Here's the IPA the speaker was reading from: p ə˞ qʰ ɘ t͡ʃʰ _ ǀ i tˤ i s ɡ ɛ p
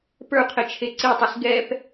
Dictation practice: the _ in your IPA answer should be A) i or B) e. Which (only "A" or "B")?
B